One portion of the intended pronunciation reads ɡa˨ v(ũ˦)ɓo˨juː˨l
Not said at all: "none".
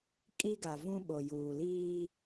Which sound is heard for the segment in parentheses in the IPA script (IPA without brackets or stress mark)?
ũ˦